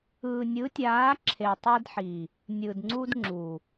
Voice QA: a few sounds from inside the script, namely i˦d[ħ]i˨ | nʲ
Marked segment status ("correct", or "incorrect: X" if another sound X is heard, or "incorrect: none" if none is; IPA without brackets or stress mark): correct